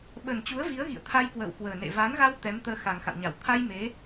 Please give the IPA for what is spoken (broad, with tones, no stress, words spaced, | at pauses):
ɓə˨˩nt͡ɕu˨˦ə̯ vi˨˦ə̯ɣḭ˧˨ə̯t̪ʰa˧j kwə̰ː˧˨wkwəː˨˩nḛ˧˨ va˨˦nɣa˧w t̪ɛ˨˦mt̪əː˧ xa˨˩ŋxa̰˧˨wɲa˧˩w t̪ʰa˧j me˨˦